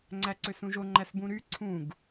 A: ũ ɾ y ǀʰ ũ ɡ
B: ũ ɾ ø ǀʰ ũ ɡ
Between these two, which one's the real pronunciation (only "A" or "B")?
A